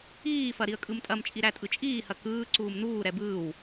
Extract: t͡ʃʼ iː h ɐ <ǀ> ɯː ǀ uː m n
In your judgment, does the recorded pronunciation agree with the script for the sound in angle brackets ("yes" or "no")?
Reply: no